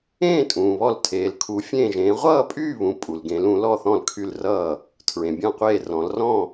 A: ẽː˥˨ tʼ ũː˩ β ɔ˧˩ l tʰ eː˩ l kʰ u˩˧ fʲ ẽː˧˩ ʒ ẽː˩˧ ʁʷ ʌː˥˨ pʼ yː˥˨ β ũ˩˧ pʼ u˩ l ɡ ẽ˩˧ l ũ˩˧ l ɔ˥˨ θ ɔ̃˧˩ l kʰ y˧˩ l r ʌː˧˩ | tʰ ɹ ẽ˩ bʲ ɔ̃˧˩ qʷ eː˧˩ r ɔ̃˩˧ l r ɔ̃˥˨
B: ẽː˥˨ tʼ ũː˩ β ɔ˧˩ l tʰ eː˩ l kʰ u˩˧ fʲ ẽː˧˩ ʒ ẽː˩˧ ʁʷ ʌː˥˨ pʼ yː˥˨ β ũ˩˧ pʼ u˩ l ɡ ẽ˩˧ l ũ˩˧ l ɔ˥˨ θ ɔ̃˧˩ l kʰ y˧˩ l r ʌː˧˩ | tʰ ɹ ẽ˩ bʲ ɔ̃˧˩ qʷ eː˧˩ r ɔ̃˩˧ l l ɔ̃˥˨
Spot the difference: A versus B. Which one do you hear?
A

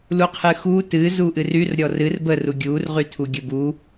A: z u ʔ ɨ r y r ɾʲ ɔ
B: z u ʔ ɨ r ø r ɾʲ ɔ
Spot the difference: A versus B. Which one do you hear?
A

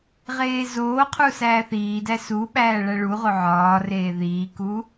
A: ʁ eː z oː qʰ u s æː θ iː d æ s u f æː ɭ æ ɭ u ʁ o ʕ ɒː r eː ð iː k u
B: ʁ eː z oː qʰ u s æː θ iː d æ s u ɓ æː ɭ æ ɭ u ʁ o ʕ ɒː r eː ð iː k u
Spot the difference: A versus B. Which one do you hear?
B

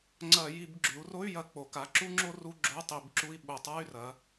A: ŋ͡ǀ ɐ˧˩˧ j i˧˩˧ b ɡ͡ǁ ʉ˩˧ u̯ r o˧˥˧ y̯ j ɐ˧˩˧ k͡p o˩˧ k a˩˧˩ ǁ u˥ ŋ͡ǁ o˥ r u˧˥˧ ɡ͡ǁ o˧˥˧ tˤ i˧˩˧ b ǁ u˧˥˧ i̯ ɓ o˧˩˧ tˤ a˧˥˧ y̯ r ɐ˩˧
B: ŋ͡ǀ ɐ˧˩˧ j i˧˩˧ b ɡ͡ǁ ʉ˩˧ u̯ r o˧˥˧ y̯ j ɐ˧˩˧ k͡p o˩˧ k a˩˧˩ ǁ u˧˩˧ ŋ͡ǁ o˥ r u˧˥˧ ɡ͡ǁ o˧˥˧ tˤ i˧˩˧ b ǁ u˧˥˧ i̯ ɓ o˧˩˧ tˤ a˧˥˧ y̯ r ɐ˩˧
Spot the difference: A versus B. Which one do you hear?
A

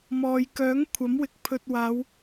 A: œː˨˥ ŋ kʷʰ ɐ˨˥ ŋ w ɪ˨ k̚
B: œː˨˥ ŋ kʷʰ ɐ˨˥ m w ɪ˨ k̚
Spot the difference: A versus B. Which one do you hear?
B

